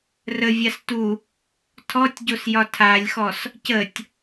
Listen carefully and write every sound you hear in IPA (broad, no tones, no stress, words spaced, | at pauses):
rəvʲas tu | tʰɔtʲɟosjɒ tʰalʲxɔs | cətʲ